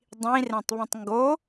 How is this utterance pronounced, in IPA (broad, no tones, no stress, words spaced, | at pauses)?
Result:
dˤĩrẽtˤβĩtˤ ŋɡo